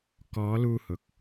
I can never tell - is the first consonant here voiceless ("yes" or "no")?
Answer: yes